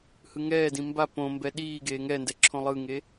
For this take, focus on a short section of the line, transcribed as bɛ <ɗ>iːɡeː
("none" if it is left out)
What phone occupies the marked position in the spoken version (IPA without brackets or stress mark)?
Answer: ɗ